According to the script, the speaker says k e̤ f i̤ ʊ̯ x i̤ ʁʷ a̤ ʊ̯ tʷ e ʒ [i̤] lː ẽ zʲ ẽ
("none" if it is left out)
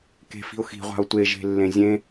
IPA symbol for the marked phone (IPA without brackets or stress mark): e̤